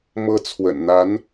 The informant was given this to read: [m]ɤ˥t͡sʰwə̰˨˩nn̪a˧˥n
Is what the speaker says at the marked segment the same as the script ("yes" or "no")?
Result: yes